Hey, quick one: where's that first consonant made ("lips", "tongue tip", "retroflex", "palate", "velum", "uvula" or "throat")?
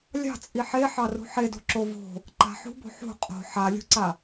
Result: tongue tip